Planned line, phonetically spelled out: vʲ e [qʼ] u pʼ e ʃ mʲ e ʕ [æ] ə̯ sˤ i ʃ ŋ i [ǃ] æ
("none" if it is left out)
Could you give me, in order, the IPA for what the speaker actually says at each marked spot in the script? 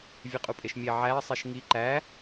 qʼ, æ, ǃ

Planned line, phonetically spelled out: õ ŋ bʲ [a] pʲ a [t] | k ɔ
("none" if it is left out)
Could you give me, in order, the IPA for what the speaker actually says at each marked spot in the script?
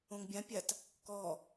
ã, t

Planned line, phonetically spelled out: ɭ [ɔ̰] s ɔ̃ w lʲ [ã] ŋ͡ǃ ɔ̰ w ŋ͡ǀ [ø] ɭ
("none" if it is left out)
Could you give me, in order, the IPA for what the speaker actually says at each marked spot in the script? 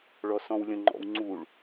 ɔ, ə̃, u

